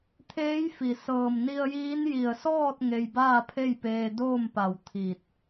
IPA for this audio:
t̪ʰ eː˧˥ j f i˩ s ɤː˧˩ m n i˧ ə̯ j iː˧˥ n j i˧˩ ə̯ s ɔː˥˨ t̚ ŋ e˧ j b aː˥˨ pʰ e˥˨ j p eː˧ d oː˥˨ m p a˧˩ w t̪ʰ i˧˩ t̚

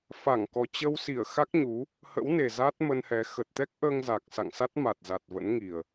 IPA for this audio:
f a˧˩ ŋ k ɔ˨˩ t͡ɕ ə˧ w s i˧˩ ə̯ x a˦˥ k̚ ɲ u˨˦ | h ə̰˧˥ w n e˨˩ z a˦˥ t̚ m ə˧ n h ɛ˨˦ x ə˨˩ t̚ t̪ ɛ˦˥ k̚ ʔ əː˧ ŋ z a˨˩ k̚ s a̰˧˨ ŋ s a˦˥ t̚ m a˨˩ t̚ z a˨˩ t̚ v ə̰˧˥ n ŋ i˨˩ ə̯

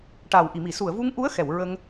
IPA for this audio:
ʈ a˨˩ w ʔ i˨˩˨ m i˨˩˨ s u˨˩˨ ə̯ v u˧ ŋ ʔ u˧˥ ə̯ x ɛ˨˩˨ w ɹ ə˧ ŋ

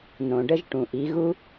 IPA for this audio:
n õ˩ ɖ ə˧ ʒ ʈ ũ˩ ʔ i˩˧ ɣ u˧

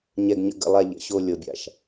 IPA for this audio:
ɲ ɛ˧ ɡ ɲ ə̰˧ ɡ ə̰˧ lˠ a˧ ʎ ə̰˨ ɕ o˧ lʲ ɤ˨ bʲ a̰˨ ʃ

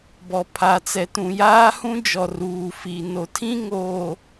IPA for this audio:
b ɔ˨ pʰ a˨ t͡s ɛ˨ t ũ˨ j aː˦ h ũ˦ d͡ʒ ɔ˨ r uː˨ f i˨ n o˨ tʰ ĩ˦ ŋ oː˨

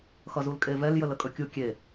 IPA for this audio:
x ʌ z u l kʼ e v ɛ l j ə l ə kʼ ɵ kʲ u kʲ e

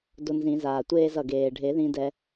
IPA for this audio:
d o˧ n z ĩ˨˩˦ z aː˩ tʷ eː˥˧ z ʌ˩ ɡ eː˩ ɖʱ e˨˩˦ ð ĩ˧ d ɛ˧

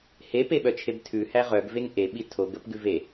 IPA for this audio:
h e p e ɓ œ t͡ʃʰ e b tʰ ʉ h æ ʁ œ ɡ v e ŋ ʔ e ɓ i tʰ o ɡ ə p ɡ ʉ v e

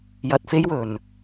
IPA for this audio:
j ɐ˧ t̚ f e˥ j w ɵ˨ n

